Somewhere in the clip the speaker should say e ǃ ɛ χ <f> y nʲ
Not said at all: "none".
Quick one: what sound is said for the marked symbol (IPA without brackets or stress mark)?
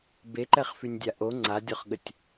f